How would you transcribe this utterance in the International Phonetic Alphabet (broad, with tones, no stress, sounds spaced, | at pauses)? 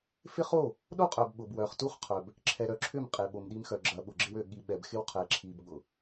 f ɪ˦ χ o˦˨ | ɗ o˦ qʼ œ˨ b ɓ ʊ˨ b w œ˨ χ t u˦ χ qʰ œ˨ b | ǁʰ ɛ˨ ɾ œ˨ ǁʰ ʏ˦˨ m qʼ e˨ ɓ o˨ m ɗ i˦ m x œ˨ ɡ͡ǁ ɐ˨ ɓ ʊ˨ ɡ͡ǁ ɪ˦ w ø˨ ɠ i˨ ɓ ɛ˨ b x ɪ˦ w qʰ ɛ˨˦ ǁʰ i˨ b ɠ ʊ˨